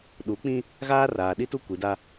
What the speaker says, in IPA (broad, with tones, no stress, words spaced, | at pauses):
ɗu˨˦k͡pĩ˦ | ɣaː˦raː˨ɗi˦tu˦ kʷi˨˦da˦